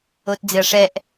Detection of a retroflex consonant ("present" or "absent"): present